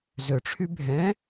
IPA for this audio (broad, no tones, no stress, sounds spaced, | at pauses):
z ø ʈ͡ʂʰ y bʱ ɛ̃